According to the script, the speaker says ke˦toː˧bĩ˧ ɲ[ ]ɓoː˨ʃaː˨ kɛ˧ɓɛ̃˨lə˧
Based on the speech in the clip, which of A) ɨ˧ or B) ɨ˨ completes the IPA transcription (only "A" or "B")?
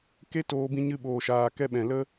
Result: A